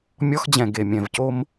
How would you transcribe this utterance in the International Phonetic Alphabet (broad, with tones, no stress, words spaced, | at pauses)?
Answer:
mʲɔ˥x d͡ʑɛ̃˧˩ɡe˧˩mʲɛ̃˧˩vco˥m